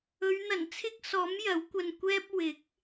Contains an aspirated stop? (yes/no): yes